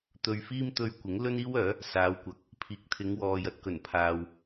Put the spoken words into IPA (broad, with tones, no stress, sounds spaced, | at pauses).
t̪ ɵ˧ ɥ f iː˥ m t̪ ɵ˥ ɥ kʷ ɪ˨˥ ŋ l ɵ˥ n iː˥ w œː˨˥ | s aː˨˧ w kʷ ɐ˨˥ k̚ | pʰ iː˨˥ k̚ t̪ʰ ɪ˨˧ ŋ w ɔː˨ j ɐ˨ t̚ k ɵ˨˩ n pʰ aː˨ w